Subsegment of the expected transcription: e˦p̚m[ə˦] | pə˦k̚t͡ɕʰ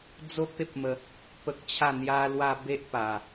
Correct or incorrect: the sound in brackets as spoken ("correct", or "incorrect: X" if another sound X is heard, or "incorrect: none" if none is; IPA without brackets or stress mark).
incorrect: ə˧